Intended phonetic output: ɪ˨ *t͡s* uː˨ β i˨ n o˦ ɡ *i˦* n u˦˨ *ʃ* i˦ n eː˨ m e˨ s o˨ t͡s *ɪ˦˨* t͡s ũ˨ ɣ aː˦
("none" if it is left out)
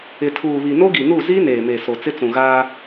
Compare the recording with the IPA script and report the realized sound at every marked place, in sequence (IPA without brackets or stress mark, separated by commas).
tʰ, i˨, z, ɪ˦